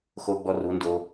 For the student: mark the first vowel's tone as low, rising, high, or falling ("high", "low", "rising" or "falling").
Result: high